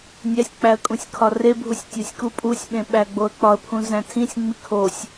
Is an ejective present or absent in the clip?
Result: present